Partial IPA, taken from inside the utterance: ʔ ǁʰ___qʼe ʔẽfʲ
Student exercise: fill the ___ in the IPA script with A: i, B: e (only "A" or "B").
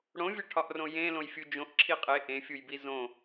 A